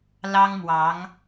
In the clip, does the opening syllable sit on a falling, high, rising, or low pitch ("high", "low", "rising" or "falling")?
high